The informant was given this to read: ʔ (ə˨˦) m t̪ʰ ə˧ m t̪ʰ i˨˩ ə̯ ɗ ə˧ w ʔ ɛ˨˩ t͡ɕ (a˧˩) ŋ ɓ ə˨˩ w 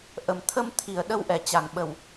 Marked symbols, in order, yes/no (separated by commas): no, no